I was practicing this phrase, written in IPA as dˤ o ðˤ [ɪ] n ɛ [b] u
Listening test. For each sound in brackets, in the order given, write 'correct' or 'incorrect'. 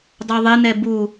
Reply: correct, correct

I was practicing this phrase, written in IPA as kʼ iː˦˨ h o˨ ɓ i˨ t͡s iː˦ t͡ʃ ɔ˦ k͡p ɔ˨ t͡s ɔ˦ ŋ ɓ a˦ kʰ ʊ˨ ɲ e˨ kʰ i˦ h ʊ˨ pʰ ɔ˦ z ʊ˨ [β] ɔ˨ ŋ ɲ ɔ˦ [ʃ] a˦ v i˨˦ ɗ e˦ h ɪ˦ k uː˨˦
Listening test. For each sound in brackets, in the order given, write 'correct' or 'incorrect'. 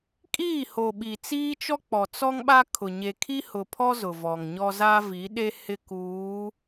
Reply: incorrect, incorrect

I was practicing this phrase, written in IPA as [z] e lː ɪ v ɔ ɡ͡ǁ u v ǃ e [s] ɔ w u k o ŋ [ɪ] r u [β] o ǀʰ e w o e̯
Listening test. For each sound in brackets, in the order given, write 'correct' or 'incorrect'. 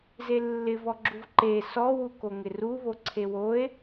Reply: correct, correct, correct, correct

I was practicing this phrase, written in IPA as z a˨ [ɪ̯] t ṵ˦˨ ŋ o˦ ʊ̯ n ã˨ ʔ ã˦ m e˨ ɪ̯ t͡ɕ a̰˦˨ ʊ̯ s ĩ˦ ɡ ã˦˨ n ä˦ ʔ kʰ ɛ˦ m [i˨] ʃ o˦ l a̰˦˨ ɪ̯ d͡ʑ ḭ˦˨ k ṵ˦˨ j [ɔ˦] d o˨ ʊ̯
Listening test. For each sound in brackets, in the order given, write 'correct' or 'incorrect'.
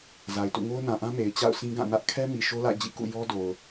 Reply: correct, correct, correct

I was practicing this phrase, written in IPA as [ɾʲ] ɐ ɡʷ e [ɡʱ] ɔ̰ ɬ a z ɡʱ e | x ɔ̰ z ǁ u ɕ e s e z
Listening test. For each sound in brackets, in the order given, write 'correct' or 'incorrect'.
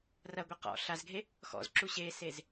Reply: incorrect, incorrect

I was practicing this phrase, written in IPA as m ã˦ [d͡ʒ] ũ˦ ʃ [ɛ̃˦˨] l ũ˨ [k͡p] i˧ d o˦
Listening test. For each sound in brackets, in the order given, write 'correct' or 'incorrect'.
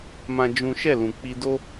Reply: correct, incorrect, correct

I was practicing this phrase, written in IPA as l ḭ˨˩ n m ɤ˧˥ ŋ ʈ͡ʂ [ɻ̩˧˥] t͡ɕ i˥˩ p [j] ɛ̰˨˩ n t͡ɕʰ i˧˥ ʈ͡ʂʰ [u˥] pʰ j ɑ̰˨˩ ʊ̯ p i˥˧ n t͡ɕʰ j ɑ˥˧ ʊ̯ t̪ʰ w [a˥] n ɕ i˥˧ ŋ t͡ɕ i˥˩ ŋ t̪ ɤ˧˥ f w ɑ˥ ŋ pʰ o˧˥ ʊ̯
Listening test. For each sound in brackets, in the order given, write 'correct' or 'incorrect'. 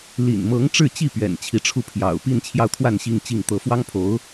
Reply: incorrect, incorrect, incorrect, incorrect

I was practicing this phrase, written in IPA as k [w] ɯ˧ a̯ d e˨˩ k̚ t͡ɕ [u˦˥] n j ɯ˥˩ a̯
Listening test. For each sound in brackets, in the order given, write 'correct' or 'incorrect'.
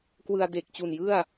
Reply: correct, incorrect

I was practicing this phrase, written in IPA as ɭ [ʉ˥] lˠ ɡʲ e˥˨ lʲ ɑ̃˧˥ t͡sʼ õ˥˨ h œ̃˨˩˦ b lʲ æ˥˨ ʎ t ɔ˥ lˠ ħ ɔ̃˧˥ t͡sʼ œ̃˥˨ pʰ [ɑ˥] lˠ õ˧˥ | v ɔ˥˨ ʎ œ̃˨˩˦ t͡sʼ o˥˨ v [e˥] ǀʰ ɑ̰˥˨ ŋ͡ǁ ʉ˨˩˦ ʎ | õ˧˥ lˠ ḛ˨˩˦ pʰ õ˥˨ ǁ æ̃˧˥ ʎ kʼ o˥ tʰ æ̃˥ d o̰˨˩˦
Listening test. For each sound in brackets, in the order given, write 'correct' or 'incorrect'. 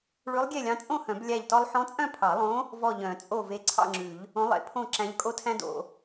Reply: incorrect, incorrect, incorrect

